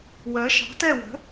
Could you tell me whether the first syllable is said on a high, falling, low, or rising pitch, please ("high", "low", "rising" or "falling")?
rising